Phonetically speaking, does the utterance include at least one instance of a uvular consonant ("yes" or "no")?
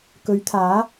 no